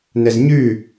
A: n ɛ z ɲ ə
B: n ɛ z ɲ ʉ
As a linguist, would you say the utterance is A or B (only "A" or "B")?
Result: B